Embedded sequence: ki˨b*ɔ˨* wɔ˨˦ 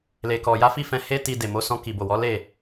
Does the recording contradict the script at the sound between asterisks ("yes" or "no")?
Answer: yes